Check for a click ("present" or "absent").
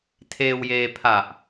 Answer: absent